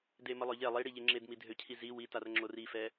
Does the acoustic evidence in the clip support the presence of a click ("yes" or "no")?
yes